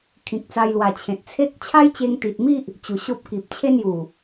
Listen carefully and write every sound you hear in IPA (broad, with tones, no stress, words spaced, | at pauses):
kʰĩ˨k̚t͡sa˧jlwa˨˩ t͡ɕʰẽ˨t̚t͡sʰe˦k̚ t͡ɕʰa˦jt͡ɕe˧ŋt̪i˨t̚mi˦ʔ | t͡ɕu˨˩ɕo˦p̚ki˨p̚ t͡ɕʰe˦nju˨˩